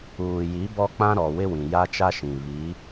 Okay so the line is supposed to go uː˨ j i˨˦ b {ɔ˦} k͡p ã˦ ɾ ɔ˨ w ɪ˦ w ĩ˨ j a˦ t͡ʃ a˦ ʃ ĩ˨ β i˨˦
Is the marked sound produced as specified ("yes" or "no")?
yes